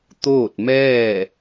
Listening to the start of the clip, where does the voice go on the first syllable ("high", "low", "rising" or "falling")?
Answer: falling